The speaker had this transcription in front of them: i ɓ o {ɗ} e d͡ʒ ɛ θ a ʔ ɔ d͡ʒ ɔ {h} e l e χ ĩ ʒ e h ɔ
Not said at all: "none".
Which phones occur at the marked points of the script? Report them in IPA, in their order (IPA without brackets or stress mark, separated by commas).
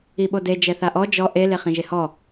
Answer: d, ʔ